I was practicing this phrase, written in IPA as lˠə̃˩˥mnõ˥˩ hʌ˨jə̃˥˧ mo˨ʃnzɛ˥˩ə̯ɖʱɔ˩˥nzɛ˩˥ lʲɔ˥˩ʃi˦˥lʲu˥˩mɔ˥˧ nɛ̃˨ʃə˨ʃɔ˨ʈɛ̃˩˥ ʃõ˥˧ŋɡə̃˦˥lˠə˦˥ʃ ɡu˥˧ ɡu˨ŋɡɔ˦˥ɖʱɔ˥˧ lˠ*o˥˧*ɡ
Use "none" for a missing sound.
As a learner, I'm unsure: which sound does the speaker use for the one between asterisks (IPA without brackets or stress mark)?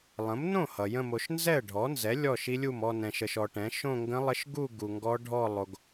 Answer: o˨